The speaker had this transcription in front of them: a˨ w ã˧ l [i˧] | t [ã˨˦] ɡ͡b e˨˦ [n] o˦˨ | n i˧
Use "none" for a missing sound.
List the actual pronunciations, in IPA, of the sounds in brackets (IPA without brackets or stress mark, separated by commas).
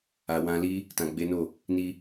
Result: i˦, ã˨, n